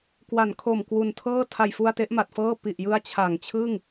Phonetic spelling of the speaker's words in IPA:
k w a˩˦ n kʰ o˨˩ m k w u˨˩ n tʰ ɤː˥˩ tʰ a˨˩ j f u˧ a̯ t e˦˥ ʔ m a˨˩ t̚ f ɤː˥˩ p i˨˩ ʔ j ɯ˦˥ a̯ t͡ɕʰ a˨˩ ŋ t͡ɕʰ ɯ˥˩ ŋ

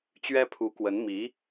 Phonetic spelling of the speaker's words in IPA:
t͡ɕ ɥ ɛ˥ pʰ u˧˥ k w ə˧˥ n m i˧˥

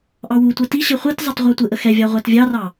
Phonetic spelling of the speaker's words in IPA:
ʔ ɑ w u tʷ ɘ t i ɕ ɘ χʷ i t zˤ ə tˤ ʁʷ ɑ tʷ ɘ ʔ ə x ɛ vʲ ɑ ʁʷ ɛ t vʲ ɑ r ɑ

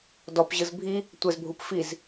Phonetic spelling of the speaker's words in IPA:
d ɔ p ʑ ɯ z bʱ i | tʷ ɛ z bʱ u p f i z

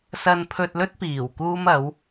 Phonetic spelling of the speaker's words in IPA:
s ɐ˧ n pʰ ɵ˧ t̚ l ɵ˥ t̚ p iː˨˩ w k uː˥ m ɐ˨˥ w

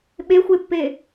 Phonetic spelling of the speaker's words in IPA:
ɓ e xʷ e pː e

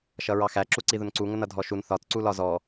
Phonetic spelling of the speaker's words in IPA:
ʃ ʌ ɹ ɑ x æ ǁ u ǀ i ð ʊ n ǀ u ŋ ə n ʌ dʱ ɔ ʃ u n θ ɒ t ǀ u l ɒ z ɔ

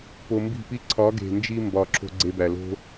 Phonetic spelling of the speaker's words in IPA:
p o˧ m b i̤˦˨ p i˦ ǀʰ ɒ˨˦ ɡ e̤˨ n d͡ʒ i˧ m b ɒ˦˨ ǁʰ o̤˦ ɡ͡ǀ e˧ b æ˨ l o̤˦

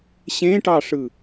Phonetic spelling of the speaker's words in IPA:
ɕ ẽ ʈ ɑ ʂ ɯ

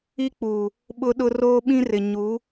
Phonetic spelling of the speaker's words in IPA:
i˦ k͡p uː˨ | ɓ ʊ˦ ɗ ʊ˦ r oː˦ ɓ ĩ˦ r ɪ˨ ɲ u˨˦

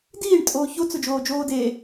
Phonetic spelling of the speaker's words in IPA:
d iː ɳ tʼ oː ç o t͡s ʊ d͡ʒ oː d͡ʒ oː d e

